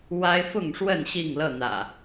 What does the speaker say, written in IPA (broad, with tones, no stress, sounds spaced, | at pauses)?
w a˦ ɪ̯ f ʊ˥˨ ŋ ʂ w ə˥˨ n ɕ i˥˨ ŋ l ɤ˥˨ n̪ ä̰˨˩